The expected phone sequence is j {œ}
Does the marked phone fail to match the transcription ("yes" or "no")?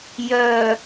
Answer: no